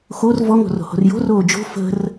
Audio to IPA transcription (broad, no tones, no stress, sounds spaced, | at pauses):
x o r v ɔ ŋ o̤ r o̤ h o̤ r j o̤ r oː d͡ʒ o̤ f ə̤ r